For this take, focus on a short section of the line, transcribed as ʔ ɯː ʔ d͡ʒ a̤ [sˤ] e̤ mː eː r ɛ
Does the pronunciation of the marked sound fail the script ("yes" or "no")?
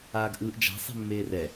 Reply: no